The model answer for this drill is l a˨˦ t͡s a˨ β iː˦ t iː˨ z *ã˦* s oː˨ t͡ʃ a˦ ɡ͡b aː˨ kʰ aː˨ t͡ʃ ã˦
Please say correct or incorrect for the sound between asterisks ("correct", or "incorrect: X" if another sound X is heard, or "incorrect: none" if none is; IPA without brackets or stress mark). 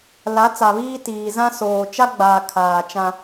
correct